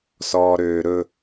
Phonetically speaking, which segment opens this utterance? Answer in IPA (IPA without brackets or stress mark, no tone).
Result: s